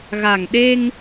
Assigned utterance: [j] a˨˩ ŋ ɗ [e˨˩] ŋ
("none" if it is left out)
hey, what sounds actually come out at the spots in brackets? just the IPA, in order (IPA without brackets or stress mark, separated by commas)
ɣ, e˧